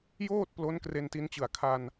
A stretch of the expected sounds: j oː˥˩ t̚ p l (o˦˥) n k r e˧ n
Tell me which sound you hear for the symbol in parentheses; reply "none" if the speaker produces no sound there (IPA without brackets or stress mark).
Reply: o˦˥